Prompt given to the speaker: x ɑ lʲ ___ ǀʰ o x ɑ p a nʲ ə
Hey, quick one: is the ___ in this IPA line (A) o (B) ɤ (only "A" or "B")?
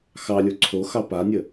A